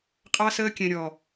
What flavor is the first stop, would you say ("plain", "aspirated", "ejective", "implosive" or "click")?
ejective